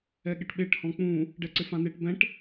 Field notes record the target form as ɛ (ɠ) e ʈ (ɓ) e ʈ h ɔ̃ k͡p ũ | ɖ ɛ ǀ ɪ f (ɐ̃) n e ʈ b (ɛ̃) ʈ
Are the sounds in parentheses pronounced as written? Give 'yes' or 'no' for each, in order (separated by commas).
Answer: yes, yes, no, yes